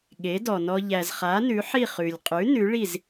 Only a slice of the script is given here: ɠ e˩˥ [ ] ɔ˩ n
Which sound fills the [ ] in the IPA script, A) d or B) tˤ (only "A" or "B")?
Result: A